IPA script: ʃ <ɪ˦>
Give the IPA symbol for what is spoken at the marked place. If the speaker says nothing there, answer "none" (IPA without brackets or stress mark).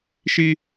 i˦